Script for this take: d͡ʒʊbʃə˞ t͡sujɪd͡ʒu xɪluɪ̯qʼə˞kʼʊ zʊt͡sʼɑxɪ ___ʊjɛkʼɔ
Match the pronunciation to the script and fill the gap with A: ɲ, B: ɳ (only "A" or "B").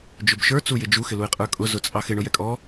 B